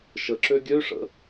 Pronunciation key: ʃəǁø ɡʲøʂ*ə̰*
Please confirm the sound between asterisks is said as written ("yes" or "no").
yes